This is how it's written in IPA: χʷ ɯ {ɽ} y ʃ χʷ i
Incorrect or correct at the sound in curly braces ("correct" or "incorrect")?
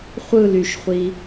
incorrect